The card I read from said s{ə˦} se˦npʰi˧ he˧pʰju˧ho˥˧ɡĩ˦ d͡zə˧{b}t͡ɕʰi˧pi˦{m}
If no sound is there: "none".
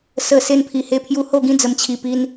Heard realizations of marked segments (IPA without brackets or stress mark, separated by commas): ə˨˩, m, n